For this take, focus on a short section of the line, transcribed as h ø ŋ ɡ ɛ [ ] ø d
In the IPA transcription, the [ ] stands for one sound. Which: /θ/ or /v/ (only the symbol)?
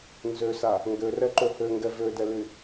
v